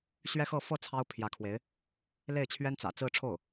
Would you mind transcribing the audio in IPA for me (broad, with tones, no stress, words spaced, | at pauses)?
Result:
ɕɥɛ˥xɤ˥˧ fɤ˥˩ t͡sʰɑ˥ʊ̯pʰjä˧˥kʰwe˧˥ɪ̯ | le˥˩ɪ̯t͡ɕʰɥɛ˥nt͡sä̰˨˩ t͡sɹ̩˥˧ʈ͡ʂʰo˥˩ʊ̯